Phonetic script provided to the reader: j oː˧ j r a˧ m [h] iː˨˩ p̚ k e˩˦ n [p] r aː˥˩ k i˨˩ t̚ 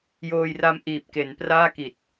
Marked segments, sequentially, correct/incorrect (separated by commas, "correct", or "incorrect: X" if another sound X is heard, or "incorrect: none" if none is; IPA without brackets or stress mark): incorrect: ʔ, correct